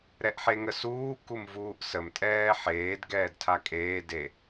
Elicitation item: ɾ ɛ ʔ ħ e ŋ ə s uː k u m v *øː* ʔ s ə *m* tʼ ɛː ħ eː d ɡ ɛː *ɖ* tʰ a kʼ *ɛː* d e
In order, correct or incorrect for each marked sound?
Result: incorrect, correct, incorrect, incorrect

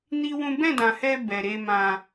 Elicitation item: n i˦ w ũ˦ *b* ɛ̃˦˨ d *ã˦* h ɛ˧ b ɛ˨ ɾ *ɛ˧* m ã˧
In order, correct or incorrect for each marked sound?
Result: correct, incorrect, incorrect

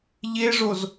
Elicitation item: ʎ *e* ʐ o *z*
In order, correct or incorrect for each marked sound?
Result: correct, correct

